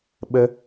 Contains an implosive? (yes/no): yes